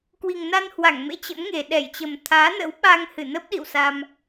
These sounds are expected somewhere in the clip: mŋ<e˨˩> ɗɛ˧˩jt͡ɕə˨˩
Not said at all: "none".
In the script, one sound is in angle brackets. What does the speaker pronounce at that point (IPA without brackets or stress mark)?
e˨˩